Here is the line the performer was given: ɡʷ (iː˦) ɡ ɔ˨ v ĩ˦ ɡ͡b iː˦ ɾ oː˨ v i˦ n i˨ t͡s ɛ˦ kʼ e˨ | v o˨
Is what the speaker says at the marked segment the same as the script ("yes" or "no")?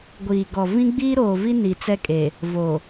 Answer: no